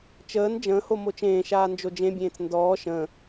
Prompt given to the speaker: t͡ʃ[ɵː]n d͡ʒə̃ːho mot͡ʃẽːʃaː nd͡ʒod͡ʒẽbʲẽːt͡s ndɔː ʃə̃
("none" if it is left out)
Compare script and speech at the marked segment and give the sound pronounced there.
əː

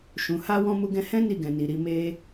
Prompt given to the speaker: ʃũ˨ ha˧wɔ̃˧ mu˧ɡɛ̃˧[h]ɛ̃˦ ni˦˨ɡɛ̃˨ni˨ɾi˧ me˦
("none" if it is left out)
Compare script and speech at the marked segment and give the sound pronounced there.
h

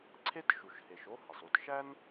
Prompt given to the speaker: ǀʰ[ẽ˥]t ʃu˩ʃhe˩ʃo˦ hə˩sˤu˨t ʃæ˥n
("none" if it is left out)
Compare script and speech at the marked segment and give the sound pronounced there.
e˥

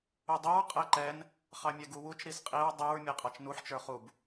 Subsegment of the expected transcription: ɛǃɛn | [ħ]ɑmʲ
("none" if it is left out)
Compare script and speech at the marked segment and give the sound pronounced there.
χ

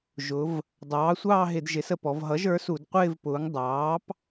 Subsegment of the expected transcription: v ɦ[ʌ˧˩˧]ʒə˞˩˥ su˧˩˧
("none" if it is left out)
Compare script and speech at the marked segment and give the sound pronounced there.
ʌ˩˥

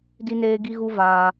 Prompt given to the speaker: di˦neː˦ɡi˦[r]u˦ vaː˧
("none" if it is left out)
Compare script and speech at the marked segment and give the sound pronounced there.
ɣ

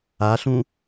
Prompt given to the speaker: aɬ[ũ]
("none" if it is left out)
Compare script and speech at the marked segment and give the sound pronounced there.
ũ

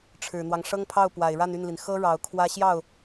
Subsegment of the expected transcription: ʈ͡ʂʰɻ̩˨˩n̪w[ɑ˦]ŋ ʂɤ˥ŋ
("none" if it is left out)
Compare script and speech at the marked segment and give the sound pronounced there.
ɑ˦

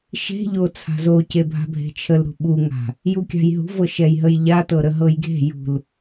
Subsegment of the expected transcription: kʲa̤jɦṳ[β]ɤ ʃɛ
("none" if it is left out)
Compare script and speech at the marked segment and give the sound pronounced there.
v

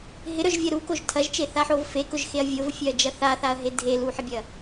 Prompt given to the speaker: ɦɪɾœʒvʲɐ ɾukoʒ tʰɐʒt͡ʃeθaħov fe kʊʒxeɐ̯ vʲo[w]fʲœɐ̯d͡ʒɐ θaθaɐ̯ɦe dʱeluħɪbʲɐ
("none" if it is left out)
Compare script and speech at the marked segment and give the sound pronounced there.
v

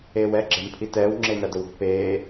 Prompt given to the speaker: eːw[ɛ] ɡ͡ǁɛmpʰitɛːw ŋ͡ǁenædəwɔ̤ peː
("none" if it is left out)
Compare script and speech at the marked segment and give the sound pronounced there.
ɛ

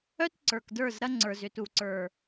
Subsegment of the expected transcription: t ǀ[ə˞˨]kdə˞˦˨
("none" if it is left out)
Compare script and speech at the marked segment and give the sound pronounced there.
ə˞˨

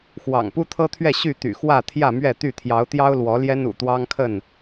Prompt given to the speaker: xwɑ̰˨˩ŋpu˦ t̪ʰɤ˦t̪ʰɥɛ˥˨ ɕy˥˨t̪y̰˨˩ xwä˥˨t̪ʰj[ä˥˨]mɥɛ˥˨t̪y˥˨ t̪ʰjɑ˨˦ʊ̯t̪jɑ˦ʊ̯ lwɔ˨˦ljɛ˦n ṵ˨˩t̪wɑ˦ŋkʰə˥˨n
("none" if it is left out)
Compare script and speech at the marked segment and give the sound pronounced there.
ä˥˨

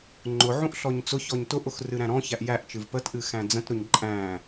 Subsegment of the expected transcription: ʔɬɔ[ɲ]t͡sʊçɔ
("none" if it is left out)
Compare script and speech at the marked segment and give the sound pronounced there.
ɲ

